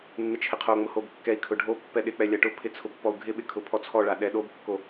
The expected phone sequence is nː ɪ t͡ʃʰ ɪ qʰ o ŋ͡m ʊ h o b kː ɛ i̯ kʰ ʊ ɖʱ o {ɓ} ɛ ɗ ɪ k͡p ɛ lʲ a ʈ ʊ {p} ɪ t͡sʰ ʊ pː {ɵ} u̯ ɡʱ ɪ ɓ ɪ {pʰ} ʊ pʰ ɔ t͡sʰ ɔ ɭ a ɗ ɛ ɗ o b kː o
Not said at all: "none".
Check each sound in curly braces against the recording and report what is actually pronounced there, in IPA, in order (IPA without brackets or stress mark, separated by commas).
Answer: pː, pʰ, ɔ, kʰ